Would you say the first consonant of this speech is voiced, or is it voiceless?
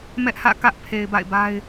voiced